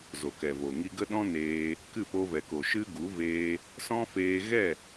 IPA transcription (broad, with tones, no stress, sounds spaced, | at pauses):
z o˨ k ɛ˨ v o˨ ŋ i˧ ɡ ə˦ ɗ ɔ̃˦ n eː˧ | k ɨ˦˨ p o˧ v ɛ˨ k o˨ ʃ ɨ˦ ɡ u˨˦ v eː˧ | s ɔ̃˦ f eː˧ ɣ ɛ˦˨